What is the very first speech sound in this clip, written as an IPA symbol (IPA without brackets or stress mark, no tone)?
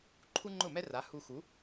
ǃʰ